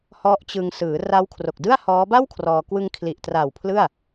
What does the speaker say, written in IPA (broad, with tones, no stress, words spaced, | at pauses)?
hɔ˦˥ʔt͡ɕɯ˧ŋ sɯː˩˦ ra˦˥wkʰro˨˩k̚dɯ˥˩a̯hɔː˦˥ ba˥˩wkʰrɔː˧ kwɯ˧ŋkʰli˨˩ʔtra˨˩w pʰlɯ˥˩a̯